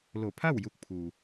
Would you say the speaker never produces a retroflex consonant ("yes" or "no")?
yes